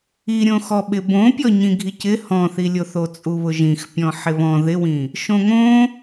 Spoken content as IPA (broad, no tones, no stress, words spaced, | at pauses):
iɾʲõxɔɓɪ bõpʲɔ ɲĩɡʱicɪ hɔ̃θilʲo θot͡sʼuβʊʒĩx pʲɔ̃ħɪβɔ̃ ðɪwĩ | ʃõŋõ